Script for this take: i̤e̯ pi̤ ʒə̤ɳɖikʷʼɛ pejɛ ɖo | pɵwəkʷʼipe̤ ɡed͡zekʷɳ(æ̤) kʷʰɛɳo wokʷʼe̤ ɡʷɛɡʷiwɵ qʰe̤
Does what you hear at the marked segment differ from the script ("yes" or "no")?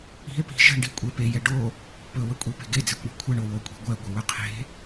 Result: yes